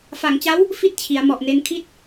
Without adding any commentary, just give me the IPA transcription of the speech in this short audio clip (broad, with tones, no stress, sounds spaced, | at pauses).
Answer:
f a˩˦ ŋ t͡ɕ a˦˥ w | f i˥˩ t̚ t͡ɕʰ i˩˦ a̯ m ɔ˨˩ ʔ n e˧ n kʰ i˥˩ t̚